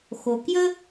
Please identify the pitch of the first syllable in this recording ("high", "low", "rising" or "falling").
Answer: low